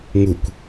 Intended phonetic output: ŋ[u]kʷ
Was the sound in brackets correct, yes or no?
yes